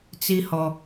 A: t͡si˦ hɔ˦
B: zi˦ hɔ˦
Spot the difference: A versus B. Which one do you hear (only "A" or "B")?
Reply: A